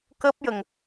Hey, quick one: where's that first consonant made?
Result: velum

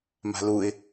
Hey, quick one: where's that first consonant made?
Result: lips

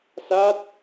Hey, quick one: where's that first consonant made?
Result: tongue tip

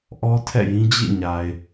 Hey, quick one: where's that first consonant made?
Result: throat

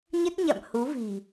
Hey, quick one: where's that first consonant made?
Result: palate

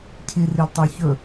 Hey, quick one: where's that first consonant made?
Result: palate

